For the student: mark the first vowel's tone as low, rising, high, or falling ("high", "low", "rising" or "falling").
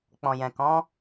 low